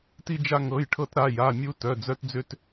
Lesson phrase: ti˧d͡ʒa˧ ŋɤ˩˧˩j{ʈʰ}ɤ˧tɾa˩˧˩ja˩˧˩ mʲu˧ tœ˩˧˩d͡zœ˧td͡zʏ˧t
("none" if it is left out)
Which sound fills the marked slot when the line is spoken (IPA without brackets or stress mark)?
ʈʰ